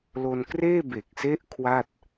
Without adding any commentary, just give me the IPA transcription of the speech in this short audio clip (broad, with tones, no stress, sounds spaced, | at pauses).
l o˧ n k r eː˥˩ b e˨˩ k̚ s e˦˥ ʔ kʰ w a˥˩ t̚